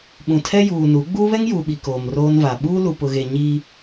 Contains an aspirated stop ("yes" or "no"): yes